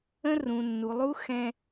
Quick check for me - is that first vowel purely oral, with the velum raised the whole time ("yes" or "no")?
no